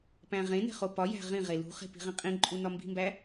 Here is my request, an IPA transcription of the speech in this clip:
p æ̃ ʁ ẽ n e̤ χ o p ɒ j æ̤ ʁ ĩ ʁ e l ṳ χ e̤ p i̤ ʁ ẽ qʼ ĩ ǃʼ u n ɒ m b i̤ m b æ

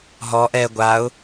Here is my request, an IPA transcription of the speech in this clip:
ɦ ɔ ʔ ɛ ɡʷ a ʊ̯

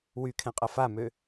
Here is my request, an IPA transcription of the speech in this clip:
w y kʰ ɛ̃ qʼ ɐ f a m ø

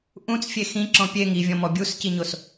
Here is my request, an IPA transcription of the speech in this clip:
ʔ ũ t͡s fʲ e x ĩ ǁ ɔ̃ pʲ e ŋ i vʲ ɔ̃ m ɔ bʲ u s c i ɲ o s

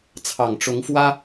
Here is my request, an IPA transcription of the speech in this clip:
t͡sʰ ɑ˨˩ ŋ ʈ͡ʂ ʊ˧˥ ŋ f w ä˥

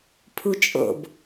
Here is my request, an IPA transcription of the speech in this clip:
pʰ u t͡ʃʼ o̰ b

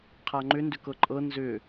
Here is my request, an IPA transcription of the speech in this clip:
qʰ a ŋ͡ǃ ʏ n d ʏ k ɤ ǃʼ ɤ n z ʏ

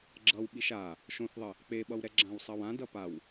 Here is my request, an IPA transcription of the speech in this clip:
ɡ͡ǁ ʌ w ɓ i ʃ a | ʃ õ θ ðˤ ə | k͡p e ɓ ʌ w ɾ ɛ ɡ͡ǁ ã w sˤ ʌ w ã d ʌ p a w

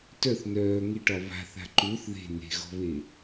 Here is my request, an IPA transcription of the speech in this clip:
t œ θ n œː ŋ e ʈ ɒ β a̤ θ a̤ ǃ u θ ð e̤ n e̤ ɣ ɔ̤ β e

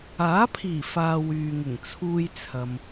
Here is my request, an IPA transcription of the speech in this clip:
aː˨˥ pʰ iː˨˩ f aː˨ w yː˨ ŋ ɪ˨˩ ŋ t͡sʰ uː˧ j t͡sʰ ɐ˨ m

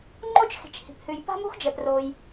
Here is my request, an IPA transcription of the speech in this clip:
ŋ͡ǃ o˥ t͡ʃ x i̤˩ t͡ʃ h i̤˩ p h ʉ˩ j p a̤˥ m ṳ˥ x d͡ʒ ɛ˩ p r o˩ j

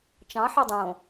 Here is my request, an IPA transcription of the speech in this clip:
t͡ʃ ɑ̃ ħ ɑ dˤ õ

